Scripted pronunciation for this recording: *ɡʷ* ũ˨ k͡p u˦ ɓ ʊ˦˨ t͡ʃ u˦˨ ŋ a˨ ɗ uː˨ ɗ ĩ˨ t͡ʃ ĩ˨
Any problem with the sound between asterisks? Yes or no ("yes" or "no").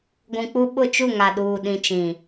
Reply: no